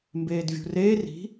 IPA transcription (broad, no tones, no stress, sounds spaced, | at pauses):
m b eː d vʲ ṳ r eː r i̤